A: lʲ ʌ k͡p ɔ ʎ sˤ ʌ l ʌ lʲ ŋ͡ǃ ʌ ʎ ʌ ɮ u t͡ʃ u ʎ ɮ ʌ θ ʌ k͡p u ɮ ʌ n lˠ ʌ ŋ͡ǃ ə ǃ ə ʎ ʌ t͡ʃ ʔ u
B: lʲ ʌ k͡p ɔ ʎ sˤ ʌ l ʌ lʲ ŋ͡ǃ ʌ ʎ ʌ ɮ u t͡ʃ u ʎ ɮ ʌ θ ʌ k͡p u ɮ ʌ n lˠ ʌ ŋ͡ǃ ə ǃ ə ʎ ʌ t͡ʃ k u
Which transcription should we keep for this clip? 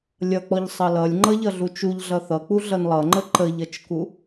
B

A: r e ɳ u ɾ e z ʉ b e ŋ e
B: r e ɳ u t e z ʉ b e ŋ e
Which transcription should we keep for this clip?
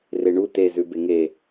B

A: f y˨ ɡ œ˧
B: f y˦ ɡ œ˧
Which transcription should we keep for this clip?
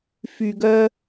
A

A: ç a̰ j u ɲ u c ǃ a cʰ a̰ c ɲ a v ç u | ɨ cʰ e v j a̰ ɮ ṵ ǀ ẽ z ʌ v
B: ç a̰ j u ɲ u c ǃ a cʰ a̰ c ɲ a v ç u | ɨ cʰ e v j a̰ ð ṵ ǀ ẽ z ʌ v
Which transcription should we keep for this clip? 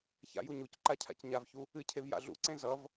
A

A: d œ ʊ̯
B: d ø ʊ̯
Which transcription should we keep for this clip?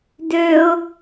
B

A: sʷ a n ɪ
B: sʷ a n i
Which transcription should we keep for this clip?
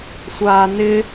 A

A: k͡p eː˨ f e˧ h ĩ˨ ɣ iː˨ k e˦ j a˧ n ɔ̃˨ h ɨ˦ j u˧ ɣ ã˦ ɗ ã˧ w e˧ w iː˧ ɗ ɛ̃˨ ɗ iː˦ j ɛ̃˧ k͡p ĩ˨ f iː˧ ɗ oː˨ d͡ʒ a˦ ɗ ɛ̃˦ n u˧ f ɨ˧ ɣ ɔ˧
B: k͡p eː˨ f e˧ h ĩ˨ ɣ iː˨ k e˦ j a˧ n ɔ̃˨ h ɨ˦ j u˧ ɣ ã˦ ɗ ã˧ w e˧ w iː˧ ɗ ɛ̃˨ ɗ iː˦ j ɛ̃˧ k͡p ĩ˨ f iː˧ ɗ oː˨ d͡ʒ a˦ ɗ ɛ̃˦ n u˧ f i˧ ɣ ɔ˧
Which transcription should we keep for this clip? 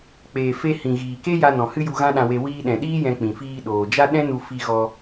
B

